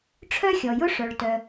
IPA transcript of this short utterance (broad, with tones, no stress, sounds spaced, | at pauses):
ʈ͡ʂʰ œ˥ xʲ ɔ˩ j ʊ˥ ʂ œ˩ ɭ t œ˩